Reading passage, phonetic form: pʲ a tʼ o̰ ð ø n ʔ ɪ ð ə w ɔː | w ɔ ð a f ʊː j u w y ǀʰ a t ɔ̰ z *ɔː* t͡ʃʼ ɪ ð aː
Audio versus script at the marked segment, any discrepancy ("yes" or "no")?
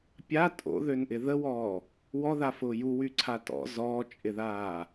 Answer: no